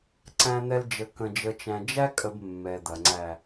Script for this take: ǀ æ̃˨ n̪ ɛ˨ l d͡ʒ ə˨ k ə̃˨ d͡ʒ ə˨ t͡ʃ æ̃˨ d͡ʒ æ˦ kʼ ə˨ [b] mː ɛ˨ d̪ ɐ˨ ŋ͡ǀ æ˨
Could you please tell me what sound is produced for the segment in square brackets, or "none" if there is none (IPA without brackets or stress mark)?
b